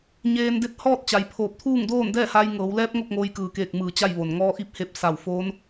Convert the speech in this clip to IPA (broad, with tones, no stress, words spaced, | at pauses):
ɲeː˧nde˧˥t̚ hɔː˥˨t̚t͡ɕa˩˧jpʰoː˧˩p̚ t̪ʰuː˥˨ŋdoː˥˨ndɛː˥˨ ha˧jŋɤː˩˧wlɛː˧˥p̚ ŋo˥˨k̚ŋoː˧jkɯː˩keː˧˩k̚ mɯː˧˩t͡ɕa˥˨jʋo˩n ŋɔː˧ʔi˧˥p̚he˧˩p̚ sa˧˩wfoː˧˥n